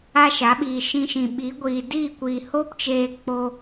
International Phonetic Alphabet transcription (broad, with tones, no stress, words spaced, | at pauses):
a˦ʃa˨˦ ɓiː˨ ʃĩ˧ ʃĩ˨ɓiː˨˦ɡʷiː˨ diː˦˨kʷiː˨ hoː˦pt͡ʃeː˧ k͡po˧